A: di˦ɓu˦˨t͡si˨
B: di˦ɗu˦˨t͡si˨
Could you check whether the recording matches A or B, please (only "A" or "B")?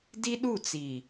B